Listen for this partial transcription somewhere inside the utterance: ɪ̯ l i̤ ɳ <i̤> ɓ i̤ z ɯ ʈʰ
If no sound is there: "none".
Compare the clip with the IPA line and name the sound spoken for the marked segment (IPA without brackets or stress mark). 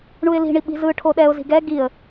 i